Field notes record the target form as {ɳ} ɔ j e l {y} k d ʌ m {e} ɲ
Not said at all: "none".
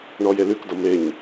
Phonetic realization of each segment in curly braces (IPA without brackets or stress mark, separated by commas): ɳ, y, e